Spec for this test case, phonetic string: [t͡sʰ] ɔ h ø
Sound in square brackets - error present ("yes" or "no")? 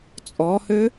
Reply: yes